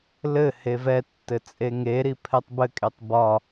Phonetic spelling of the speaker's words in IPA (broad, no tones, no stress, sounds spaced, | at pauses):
l ɘ h e v ɛ tː ɘ t͡sʼ e ŋ e ɾ i pʰ ɛ tˤ b ɘ kʼ e tˤ b ɒ